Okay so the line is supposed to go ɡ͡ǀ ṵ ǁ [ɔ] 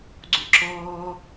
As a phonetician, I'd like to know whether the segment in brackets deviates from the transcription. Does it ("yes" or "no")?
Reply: yes